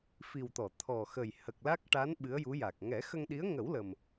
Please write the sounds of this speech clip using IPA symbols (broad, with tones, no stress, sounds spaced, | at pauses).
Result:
f i˨˩ w t̪ ɔ˨˩˨ t̪ʰ ɔ˨˩ x ə˨˩ j h ə˨˩ k̚ l a˦˥ k̚ ʈ a˧˥ n ɓ ɨ˧˥ ə̯ j u˧˥ j a˨˩ k̚ ŋ ɛ˨˩˦ x ə˧ ŋ ɗ i˧˥ ə̯ ŋ ə˨˩˦ w l ə˨˩ m